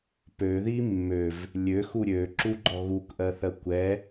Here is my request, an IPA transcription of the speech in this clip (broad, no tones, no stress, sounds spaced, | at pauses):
p ø ð i mː ø v | lʲ ø x u ɾʲ ø ǁ u ɡ͡ǃ ɔ ɣ u k ʔ ɜ θ ɜ kʷ ɛ